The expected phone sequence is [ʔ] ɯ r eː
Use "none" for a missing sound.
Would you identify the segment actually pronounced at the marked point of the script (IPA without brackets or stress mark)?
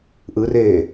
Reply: ʔ